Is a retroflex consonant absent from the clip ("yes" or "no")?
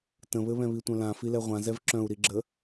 yes